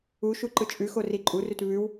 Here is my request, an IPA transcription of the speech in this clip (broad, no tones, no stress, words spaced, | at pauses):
u ʃuǃɯt͡ʃʼʉxo riǃʼurʉt βʉw